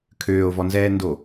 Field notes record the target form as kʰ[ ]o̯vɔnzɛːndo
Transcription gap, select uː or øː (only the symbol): øː